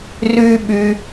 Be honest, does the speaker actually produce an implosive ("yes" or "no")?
yes